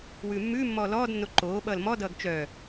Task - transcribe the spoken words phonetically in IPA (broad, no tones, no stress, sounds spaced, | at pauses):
w ʉː mː ʉː mː ɔː l ɔː d nː o ǃ oː ɓ ʌː l m ɔ d ʌː ɡ t͡ʃ œ